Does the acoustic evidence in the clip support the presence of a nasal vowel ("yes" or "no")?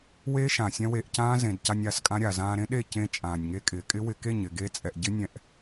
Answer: yes